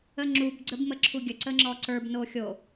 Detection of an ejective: absent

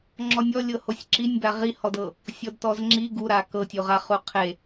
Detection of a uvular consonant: present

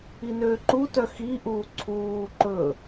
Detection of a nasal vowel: absent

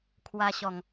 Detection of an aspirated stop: present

